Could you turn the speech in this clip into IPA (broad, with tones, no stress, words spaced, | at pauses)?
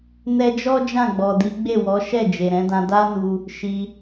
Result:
nɛ˧d͡ʒɔ˦ d͡ʒã˦˨ɡ͡bɔ˨ di˨˦ɡ͡be˦˨wɔ˨˦ ʃɛ˦˨ d͡ʒe˨ɾɛ̃˨˦dã˧ da˦nu˧ | ʃi˧